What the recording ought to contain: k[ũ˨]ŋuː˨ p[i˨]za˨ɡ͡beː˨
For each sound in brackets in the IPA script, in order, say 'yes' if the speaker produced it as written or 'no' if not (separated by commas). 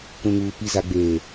yes, yes